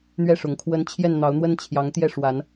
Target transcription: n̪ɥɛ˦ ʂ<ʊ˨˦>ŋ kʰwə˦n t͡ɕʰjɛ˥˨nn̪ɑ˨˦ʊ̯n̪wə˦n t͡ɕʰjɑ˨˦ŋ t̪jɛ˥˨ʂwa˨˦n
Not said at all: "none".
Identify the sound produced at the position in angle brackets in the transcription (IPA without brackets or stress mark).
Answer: ʊ˨˦